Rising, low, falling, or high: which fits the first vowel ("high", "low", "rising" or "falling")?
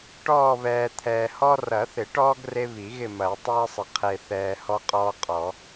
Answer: falling